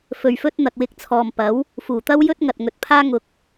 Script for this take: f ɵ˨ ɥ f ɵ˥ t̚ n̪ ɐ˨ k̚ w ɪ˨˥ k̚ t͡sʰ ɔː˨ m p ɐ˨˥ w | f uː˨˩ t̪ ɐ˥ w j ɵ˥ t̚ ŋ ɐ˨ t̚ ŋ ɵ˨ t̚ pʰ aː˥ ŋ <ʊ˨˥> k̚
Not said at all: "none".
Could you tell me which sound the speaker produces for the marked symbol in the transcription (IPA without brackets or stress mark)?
ʊ˧